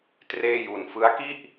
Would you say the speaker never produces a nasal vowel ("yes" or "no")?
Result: yes